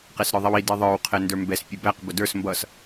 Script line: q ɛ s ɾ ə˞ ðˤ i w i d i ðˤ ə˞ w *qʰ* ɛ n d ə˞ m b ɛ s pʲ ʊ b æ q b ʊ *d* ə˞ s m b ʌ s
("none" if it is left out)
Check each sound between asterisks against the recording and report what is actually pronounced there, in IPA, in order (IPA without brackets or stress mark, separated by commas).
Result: qʰ, d